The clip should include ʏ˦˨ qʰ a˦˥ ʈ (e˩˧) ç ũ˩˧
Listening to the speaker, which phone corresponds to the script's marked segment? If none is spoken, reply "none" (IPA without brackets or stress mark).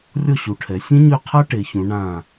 e˩˧